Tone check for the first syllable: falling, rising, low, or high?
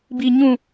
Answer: high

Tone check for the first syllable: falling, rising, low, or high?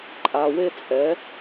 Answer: low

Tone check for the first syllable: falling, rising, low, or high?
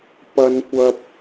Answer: high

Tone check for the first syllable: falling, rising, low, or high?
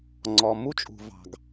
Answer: low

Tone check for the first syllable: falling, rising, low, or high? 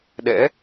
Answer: rising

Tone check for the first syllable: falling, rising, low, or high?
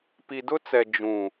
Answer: low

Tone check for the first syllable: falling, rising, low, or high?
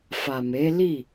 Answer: low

